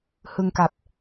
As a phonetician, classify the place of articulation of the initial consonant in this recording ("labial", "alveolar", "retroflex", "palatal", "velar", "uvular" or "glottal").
glottal